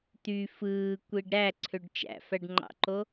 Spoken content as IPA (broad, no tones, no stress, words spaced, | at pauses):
t̪y fɯː kʷiɖɾæǀʰøɖ t͡ʃæ̰fæɖŋ͡ǃɑ̰ǃo